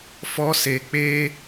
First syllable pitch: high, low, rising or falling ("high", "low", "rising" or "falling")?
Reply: high